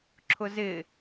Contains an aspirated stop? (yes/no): yes